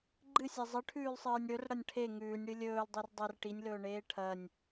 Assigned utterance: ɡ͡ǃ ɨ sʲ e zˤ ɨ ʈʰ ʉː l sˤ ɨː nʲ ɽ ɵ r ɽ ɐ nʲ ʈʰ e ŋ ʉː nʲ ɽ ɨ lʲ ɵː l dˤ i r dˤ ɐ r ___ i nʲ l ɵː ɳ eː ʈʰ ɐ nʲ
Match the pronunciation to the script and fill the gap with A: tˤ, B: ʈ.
B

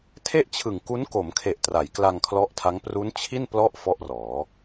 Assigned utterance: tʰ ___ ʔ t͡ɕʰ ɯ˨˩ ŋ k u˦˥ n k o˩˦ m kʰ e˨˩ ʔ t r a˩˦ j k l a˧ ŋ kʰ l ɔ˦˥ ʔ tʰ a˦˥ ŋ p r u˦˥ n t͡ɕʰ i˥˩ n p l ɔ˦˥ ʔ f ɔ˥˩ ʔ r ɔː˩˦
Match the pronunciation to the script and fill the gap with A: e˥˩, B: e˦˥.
A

